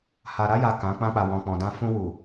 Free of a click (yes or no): yes